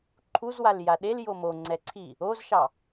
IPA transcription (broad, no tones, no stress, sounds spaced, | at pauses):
ǃʰ u z w a l j a ɗ e l j o m o ŋ͡ǀ ɛ ǀʰ i | o z ʃ ɑ